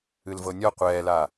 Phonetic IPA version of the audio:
ɨ l v ɤ nʲ ɔ qʷ ɛː l a

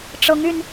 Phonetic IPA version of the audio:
ʈ͡ʂ ɤ˧˥ ŋ y˧ n

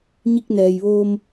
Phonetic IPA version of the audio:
ɲ i˧ k̚ n ɛː˩ j ʋ oː˧ m

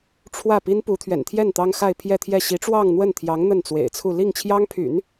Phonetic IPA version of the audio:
ʈ͡ʂʰ w ä˥˩ p i˥ n p u˧˥ t̪ʰ ɥ ɛ̰˨˩ n t̪ʰ j ɛ˥˩ n t̪ ɑ˥ ŋ x a˥˧ ɪ̯ pʰ j ɛ˥˧ t̪ʰ j ɛ˥˩ ɕ i˧˥ ʈ͡ʂ w ɑ˥˧ ŋ n̪ w ə˥˩ n t̪ʰ j ɑ˧˥ ŋ n̪ ə˥˩ n t͡s w ḛ˨˩ ɪ̯ t͡sʰ u˥˧ l i˥˩ ŋ t͡ɕʰ j ɑ˥ ŋ pʰ y̰˨˩˦ n

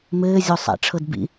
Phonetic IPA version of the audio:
m ɘː zʲ o sˤ a̰ ʈ͡ʂʰ ɤ d b ḭ

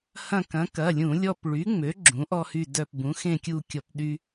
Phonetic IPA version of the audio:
h ɐ̃˦˨ k ɐ̃˩˥ k ɐ˩˧˩ lʲ ũ˧˩˧ lʲ ɔ˦˨ p ɭ y˩˥ ŋ͡m ø˩˥ ɡ͡ǁ ũ˩˥ ʔ ɔ˦ h y˦˨ d œ˦˨ p b ũ˩˥ x ẽ˦˨ kʲ u˦˨ kʲ ɔ˧˩˧ p ɗ y˦

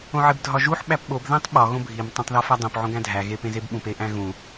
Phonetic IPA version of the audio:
õ ʕ e b dʱ ɒ ʒ u ħ ɓ æ p ɓ o b ð æ̃ tˤ ɓ ɒ ɣ õ bʱ i m tˤ æ̃ tˤ ð ɒ f æ dˤ õ p ʕ õ ɡ æ̃ dʱ æ ɣ e p ẽ z e b ɓ ũ p e ʔ æ̃ ɣ ũ

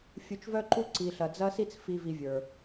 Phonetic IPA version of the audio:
fʲ u˧ t͡ʃ v œ˦ ǃ u˦ ǀ i˨ ɬ ɐ˨ d͡z ɐ˦ s i˦ t͡s f i˨ v i˧ vʲ ə˞˨

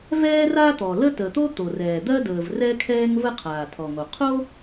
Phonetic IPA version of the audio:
v ɛː˥ r a˥ t̪ ɔ˩ l ə˥ t əː˩ t̪ o˥ t̪ o˩ r ɛː˩ d̪ ɜ˥ d əː˩ v r ɛ˥ kʰ ɛː˥ ŋ v ə˥ qʰ aː˩ tʰ ɔ˩ ŋ o˩ qʰ o˥

